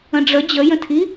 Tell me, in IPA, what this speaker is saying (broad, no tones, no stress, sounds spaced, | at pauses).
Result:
ə̃ ɖ͡ʐ ə d͡ʑ ə j ə̃ tʰ i